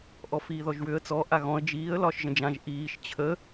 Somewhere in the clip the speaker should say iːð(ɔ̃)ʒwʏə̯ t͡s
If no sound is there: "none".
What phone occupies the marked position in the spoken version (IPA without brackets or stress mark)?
ɔ